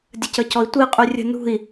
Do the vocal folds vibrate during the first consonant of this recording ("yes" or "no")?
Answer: yes